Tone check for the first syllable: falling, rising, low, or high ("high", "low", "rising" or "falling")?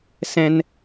high